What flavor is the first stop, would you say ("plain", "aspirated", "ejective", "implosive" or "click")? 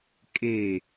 ejective